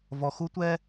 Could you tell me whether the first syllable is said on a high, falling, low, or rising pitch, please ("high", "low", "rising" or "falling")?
low